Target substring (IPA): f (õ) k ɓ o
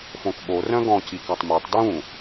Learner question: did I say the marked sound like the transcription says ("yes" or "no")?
yes